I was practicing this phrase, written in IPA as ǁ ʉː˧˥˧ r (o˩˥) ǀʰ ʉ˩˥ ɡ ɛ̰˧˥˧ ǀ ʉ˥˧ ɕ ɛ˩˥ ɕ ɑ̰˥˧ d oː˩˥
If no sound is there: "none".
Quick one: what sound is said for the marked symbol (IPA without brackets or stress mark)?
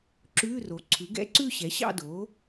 o˩˥